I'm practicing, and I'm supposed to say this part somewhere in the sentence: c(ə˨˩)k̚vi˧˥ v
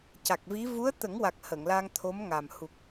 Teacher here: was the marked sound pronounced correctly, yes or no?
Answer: no